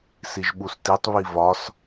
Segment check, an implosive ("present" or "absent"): present